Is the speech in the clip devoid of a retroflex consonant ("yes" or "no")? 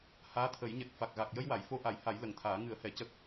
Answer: yes